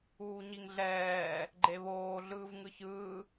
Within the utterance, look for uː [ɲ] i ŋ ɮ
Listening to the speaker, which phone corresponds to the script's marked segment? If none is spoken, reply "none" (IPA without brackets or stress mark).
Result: ɲ